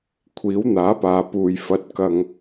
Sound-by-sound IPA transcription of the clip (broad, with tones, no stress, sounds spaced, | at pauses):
kʷʰ iː˨˥ w n̪ aː˨˥ p aː˨ p uː˨ j f ɐ˧ t̚ k ɐ˧ ŋ